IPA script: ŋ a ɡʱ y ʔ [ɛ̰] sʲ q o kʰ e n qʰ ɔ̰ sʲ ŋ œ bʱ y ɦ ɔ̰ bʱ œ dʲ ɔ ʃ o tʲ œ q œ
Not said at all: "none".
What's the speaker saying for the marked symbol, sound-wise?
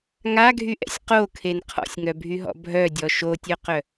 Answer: ɛ̰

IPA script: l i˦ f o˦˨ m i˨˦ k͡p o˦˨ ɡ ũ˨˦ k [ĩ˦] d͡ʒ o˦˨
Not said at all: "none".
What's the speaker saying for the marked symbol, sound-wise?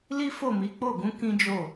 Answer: ĩ˦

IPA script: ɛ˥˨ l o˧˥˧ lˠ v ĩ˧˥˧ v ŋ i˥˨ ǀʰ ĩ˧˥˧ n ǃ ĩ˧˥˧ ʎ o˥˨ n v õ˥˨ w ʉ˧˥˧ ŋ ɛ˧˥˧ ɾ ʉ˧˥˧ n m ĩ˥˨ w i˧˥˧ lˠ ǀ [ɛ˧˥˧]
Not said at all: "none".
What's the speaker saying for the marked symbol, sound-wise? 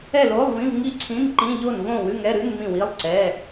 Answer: ɛ˧˥˧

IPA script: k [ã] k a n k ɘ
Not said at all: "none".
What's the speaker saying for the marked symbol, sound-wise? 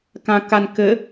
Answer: ã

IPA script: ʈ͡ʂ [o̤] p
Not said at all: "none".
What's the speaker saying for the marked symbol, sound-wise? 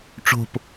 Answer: o̤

